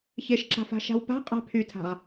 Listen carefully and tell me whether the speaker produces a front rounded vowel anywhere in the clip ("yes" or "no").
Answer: yes